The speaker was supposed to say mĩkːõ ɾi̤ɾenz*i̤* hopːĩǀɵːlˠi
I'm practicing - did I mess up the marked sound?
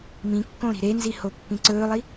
yes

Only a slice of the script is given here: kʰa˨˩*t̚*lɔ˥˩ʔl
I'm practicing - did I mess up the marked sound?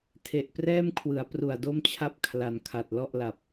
no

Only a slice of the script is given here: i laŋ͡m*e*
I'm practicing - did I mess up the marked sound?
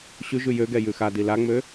yes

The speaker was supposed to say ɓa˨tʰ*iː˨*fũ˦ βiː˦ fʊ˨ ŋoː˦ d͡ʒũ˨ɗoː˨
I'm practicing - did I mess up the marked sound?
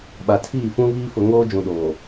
yes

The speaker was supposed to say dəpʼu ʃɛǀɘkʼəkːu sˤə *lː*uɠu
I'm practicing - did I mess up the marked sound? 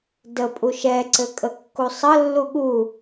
no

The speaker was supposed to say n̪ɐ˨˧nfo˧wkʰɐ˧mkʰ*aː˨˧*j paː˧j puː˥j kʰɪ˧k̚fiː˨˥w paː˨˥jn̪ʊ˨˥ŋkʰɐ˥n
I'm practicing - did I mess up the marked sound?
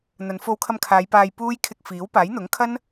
no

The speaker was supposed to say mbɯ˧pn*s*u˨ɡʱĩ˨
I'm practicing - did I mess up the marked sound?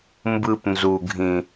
yes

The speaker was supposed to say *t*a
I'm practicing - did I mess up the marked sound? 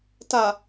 no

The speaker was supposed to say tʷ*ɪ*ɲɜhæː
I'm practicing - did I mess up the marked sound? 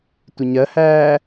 no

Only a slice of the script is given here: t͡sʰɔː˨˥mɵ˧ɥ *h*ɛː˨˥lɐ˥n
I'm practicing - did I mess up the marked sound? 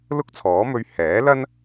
no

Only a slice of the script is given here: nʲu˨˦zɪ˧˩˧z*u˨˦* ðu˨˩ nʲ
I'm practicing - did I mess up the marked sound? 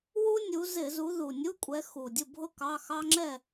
no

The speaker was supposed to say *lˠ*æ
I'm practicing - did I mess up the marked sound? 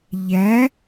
yes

